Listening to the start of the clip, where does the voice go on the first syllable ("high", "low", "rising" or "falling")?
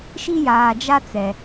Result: high